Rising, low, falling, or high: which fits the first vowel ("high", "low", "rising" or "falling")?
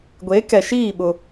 rising